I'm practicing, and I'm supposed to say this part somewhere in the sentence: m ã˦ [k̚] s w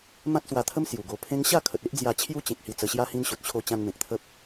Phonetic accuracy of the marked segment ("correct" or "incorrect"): incorrect